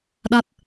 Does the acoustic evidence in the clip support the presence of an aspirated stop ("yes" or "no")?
no